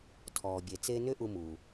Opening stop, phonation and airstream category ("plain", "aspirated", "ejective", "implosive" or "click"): aspirated